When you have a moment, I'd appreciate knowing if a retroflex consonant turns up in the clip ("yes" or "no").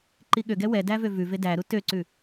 no